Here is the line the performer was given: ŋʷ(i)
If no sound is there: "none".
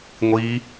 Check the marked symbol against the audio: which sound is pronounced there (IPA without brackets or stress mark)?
i